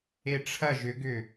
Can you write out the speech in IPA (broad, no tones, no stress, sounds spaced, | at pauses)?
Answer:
e ʈ͡ʂʰ ɐ ʒ ʏ ɡ ʏ